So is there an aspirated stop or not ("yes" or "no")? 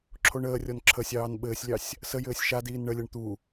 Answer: yes